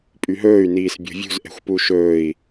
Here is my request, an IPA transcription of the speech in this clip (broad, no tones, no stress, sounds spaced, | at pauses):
pʼ y ɦ ɵː y̯ n iː s bʲ o̤ vʲ ṳ z ʔ ɛ̤ xʷ p u ʃ ɵː i̯